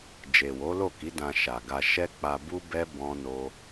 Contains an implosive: no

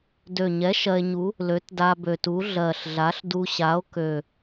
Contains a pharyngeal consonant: no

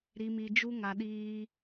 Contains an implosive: yes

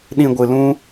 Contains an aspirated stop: no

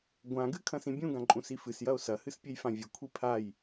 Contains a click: yes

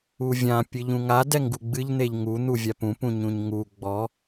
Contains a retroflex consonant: no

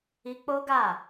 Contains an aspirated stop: no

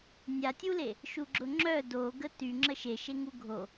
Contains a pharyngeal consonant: no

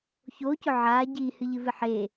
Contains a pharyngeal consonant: yes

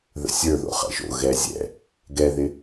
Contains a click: no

